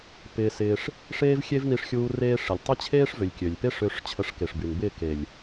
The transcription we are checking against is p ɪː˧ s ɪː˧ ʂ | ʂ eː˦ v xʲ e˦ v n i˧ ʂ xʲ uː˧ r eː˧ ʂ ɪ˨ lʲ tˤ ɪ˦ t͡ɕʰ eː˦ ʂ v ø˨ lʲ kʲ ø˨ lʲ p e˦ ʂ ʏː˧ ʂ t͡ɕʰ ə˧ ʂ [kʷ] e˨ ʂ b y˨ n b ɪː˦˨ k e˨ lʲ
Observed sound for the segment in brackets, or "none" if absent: k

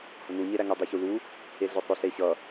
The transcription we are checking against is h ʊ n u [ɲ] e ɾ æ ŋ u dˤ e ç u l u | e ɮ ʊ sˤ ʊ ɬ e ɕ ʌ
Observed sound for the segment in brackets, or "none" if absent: ɲ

